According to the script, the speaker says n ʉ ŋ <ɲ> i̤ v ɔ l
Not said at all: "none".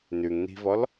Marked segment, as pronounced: n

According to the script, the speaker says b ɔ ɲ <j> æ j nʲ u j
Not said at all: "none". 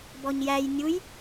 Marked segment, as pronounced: j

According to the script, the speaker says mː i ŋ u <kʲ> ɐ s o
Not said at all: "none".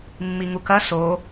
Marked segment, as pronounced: k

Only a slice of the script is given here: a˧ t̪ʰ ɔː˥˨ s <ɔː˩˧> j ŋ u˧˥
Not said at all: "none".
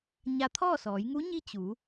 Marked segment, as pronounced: ɔː˩˧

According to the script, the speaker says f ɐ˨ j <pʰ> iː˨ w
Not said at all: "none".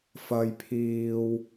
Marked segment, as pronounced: pʰ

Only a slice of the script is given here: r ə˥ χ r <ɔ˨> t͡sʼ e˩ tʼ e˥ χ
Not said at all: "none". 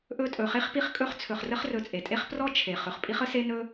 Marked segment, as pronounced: ɵ˨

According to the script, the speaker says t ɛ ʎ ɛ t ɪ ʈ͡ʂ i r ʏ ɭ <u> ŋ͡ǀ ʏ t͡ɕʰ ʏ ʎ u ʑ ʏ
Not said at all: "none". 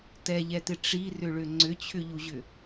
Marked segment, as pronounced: ʏ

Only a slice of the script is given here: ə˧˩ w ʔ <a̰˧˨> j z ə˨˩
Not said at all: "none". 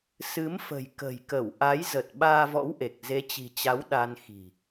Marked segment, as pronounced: a˨˦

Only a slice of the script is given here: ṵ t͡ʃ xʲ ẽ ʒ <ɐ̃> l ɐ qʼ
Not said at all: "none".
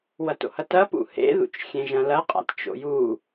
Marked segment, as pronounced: ɐ̃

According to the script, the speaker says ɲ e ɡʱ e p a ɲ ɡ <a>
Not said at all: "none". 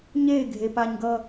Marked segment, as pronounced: ʌ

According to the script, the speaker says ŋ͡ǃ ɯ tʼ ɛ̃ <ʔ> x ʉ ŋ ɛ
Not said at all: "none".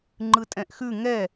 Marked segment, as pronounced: ʔ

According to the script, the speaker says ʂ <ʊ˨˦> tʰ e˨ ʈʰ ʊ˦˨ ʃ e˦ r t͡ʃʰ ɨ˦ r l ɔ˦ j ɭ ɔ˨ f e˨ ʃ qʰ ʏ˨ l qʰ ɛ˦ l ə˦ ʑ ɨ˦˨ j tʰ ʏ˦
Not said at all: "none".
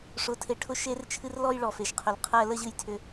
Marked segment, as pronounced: ʊ˨˦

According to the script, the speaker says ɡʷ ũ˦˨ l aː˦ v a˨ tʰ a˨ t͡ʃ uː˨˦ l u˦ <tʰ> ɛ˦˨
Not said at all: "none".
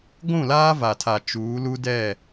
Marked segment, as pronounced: d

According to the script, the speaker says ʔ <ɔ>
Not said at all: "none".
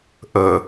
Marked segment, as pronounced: ɤ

